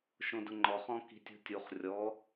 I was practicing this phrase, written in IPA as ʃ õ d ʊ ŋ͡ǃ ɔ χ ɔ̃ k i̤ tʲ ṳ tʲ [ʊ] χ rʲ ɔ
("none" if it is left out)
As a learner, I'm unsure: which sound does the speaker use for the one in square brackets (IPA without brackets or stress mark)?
u